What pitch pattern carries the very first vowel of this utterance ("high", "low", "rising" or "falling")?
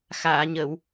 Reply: low